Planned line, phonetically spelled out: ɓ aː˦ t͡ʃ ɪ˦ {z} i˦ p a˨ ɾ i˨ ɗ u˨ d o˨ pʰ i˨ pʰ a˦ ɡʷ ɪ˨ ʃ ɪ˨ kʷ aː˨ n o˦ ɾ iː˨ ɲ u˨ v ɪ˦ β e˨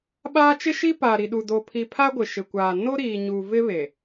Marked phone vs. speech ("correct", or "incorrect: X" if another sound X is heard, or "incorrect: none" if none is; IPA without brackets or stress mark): incorrect: ʃ